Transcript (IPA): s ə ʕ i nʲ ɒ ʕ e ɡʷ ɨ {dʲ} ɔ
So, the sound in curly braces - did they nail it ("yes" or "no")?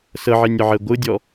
yes